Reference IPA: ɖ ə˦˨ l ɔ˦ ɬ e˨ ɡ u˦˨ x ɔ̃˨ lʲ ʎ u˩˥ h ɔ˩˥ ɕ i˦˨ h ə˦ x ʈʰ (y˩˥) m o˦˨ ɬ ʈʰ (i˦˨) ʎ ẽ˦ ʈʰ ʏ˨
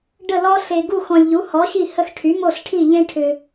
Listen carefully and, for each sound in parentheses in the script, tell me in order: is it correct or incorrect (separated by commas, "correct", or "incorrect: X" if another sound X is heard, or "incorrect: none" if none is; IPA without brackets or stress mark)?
correct, correct